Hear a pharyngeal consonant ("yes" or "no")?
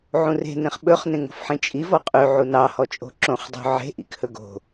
yes